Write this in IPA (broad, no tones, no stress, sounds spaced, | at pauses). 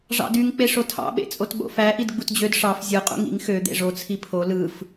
ʐ ɑ̰ d y ŋ k͡p e ʂ o tʰ ɑ̰ ɓ ḛ t͡sʼ o t ɓ o̰ f æ ʔ i d ɡ͡b u t d͡ʑ ø d ʂ ɑ f zʲ ɯ qʼ ṵ ŋ ḭ ŋ x ø d̪ ḛ ʐ o t͡sʰ i pʰ o l ɯ f